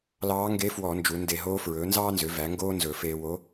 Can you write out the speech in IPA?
l ɑː˧˥ ŋ ɡ e˧˥ f w ɔ˧˩˧ n d͡ʒ u˩˧ n d e˧˩˧ ɦ oː˧˥ f ɹ ɵː˩˥ n z ɑː˥ n z ø˩˥ v æ˩˥ ŋ ɡ oː˥ n z ɵ˧˩˧ f eː˧ w o˧˥

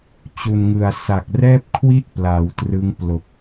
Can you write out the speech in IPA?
t͡ɕ u˨˩ n ŋ ɯ˨˩ a̯ s a˨˩ k̚ r ɛː˥˩ p̚ kʰ w i˥˩ ʔ p l a˩˦ w t r ɯ˦˥ ŋ p l o˨˩ k̚

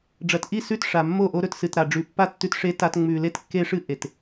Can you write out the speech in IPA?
ɖ͡ʐ ɐ˨ t ʔ i˦˨ s ʉ˦˨ t ʂ a˨ mː o˦˨ ʔ o˦ ɾ ɵ˦ t s ɨ˨ t ɾ a˨ ɖ͡ʐ ʉ˨ pː a˦ tː ʉ˦ t ʂ e˦ t a˦ t ŋ͡m ʉ˨ l e˦ t kː e˦ ʂ ɨ˦ ʔ e˨ t

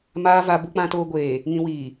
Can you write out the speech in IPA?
m aː˨ v a˨ b u˨ k͡p ã˨ t oː˨ ɡʷ eː˨ | ŋ ĩ˨ w iː˨

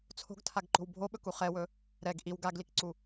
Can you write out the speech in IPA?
t͡sʰ o̤ ɡ tʰ a ɡ ǃ o̤ w bʱ o ɓ ɵ k u χ ɛ w ɵ | ɾ ɛ ɡ ʔ i w ɡ a ɡ l i k ǀ u

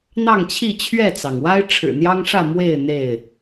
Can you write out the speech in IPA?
n̪ ɑ˥˨ ŋ t͡ɕʰ i˥˨ t͡ɕʰ ɥ ɛ˥˨ t͡s ɑ˩ ŋ w a˦ ɪ̯ ʈ͡ʂʰ ɻ̩˨˩ n̪ j ɑ˦ ŋ ʂ ä˥˨ m w e˥˨ ɪ̯ n̪ e˥˨ ɪ̯

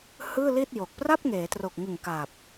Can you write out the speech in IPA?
h ɯː˥˩ l i˥˩ t̚ j o˨˩ k̚ p r a˥˩ p̚ ŋ eː˩˦ t r o˨˩ k̚ ŋ ɯ˨˩ ŋ k a˨˩ p̚

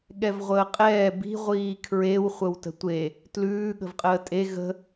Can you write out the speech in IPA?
ɠ ɛ v ʁʷ əː qʼ ɛː b i̤ ʁʷ iː kʰ ɹ e w χʷ ə w t ə̤ tʷ e | t l ʉː ɠ ə̤ v qʼ əː tʼ e ɣ ə̤

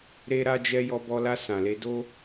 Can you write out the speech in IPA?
ɾ e˧ ɾ a˧ d͡ʒ ɛ˧ j ɔ˧ b ɔ˧ l a˧ s ã˨ l e˧ d o˦

